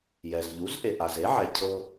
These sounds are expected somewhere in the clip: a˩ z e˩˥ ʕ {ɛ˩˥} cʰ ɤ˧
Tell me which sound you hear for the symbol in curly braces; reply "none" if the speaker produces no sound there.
ɛ˩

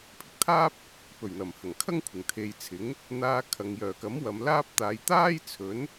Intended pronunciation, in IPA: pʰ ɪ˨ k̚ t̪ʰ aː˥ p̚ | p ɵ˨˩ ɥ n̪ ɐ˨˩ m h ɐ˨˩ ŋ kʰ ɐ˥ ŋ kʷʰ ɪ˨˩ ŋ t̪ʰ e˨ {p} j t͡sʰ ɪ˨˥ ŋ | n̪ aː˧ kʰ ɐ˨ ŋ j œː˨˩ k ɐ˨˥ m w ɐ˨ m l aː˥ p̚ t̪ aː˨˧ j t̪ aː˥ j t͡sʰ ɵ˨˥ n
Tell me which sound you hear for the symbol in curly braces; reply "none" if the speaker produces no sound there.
none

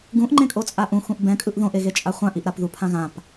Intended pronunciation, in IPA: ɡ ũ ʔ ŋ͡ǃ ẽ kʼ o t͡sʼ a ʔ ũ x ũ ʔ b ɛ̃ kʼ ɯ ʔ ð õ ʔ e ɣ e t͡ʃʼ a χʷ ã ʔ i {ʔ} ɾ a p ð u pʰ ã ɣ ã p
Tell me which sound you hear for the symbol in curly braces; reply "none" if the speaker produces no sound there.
ʔ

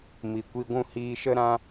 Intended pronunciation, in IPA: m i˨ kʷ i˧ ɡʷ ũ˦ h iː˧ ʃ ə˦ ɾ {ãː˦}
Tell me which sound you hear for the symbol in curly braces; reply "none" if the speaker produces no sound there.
ã˦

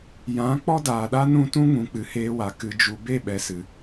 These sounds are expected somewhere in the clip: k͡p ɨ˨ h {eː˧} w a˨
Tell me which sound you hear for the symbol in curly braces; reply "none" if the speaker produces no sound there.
eː˧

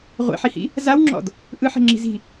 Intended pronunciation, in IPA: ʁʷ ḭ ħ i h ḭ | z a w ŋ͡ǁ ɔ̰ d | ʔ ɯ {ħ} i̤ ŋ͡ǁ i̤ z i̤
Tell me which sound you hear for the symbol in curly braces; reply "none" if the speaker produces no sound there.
ħ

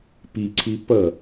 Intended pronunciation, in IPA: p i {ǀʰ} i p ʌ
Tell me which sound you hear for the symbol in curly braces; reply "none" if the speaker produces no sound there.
ǀʰ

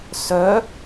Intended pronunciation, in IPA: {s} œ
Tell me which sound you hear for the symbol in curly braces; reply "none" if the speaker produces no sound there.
s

